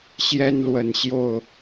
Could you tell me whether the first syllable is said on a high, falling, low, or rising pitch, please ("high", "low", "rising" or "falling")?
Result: high